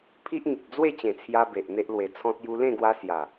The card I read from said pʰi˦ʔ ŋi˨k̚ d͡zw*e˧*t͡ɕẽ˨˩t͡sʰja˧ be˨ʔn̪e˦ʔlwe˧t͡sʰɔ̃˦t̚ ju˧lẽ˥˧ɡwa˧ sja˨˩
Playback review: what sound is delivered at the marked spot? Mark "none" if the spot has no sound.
e˥˧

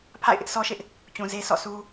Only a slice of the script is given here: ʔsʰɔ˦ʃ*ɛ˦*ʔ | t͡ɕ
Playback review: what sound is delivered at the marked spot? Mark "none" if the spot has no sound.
ɪ˦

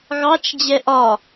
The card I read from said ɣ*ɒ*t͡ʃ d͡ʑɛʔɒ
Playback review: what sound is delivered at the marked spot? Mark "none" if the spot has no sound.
ɑ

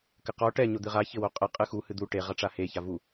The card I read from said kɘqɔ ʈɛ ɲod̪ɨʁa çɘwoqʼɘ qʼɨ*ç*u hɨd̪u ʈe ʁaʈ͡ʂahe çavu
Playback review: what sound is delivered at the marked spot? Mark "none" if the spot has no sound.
x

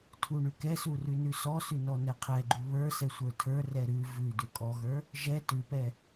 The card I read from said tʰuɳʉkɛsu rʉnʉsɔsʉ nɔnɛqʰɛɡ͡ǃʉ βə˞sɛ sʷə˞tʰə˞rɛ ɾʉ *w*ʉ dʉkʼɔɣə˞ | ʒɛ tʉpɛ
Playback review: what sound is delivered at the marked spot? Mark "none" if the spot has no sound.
v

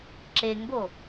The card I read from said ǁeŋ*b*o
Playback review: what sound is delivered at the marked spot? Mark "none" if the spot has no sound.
b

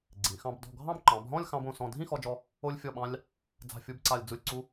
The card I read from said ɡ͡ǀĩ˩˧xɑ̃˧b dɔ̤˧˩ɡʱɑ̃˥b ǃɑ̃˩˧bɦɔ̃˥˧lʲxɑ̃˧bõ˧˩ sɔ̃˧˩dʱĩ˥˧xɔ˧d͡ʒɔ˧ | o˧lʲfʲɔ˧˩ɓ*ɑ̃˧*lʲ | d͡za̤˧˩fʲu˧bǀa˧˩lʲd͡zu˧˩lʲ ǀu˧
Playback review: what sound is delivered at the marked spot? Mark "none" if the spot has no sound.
ɑ̃˧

